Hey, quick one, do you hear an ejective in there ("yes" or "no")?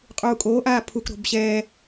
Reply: yes